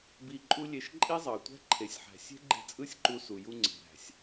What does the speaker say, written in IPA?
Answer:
b i˧ ǃʼ u˦ lʲ e˧ ʃ ǃʼ i˦ zˤ ɑ˨ tʷ æ̤˦ ǃʰ e˨ sʲ ħ æ̤˨ sʲ e̤˦ ɡ͡ǃ e̤˧ t͡sʼ ɯ˦ sʲ ǃ u˧ s u˨ j u˧ ŋ͡ǀ e̤˨ ɾ æ̤˨ sʲ

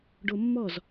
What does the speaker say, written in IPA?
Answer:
ɖ o mː ɔ z

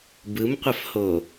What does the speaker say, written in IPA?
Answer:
b ɯ m qʷ ɐ f h o

